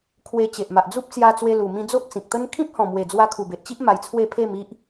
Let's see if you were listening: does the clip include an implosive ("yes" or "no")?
no